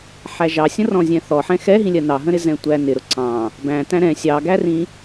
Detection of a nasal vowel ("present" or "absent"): present